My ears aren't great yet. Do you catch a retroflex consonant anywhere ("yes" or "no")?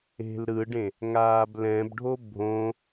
yes